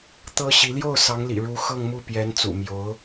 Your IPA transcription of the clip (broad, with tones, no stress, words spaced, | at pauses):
t̪ɤ˥ɕi˧˥ ljo˥˩ʊ̯ sɑ˧˥ŋlḭ˨˩ ɻu˧˥ xɤ˥˧ŋmu˥˩pjɛ˧˥n t͡sṵ˨˩mjo˧˥ʊ̯